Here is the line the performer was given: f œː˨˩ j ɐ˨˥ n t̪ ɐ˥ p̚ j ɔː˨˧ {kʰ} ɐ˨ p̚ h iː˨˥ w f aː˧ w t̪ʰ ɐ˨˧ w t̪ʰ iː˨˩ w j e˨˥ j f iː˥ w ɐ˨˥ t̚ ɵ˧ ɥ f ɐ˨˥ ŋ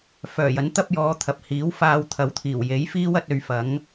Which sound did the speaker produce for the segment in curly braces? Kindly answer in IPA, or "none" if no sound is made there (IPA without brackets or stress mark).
t̪ʰ